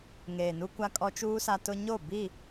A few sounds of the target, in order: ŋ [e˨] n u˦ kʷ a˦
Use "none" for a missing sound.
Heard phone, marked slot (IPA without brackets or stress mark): eː˨